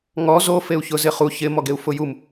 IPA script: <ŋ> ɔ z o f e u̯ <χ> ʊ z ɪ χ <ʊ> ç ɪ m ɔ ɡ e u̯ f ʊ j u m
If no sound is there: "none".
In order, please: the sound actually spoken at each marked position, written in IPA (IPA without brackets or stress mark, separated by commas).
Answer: ŋ, ç, u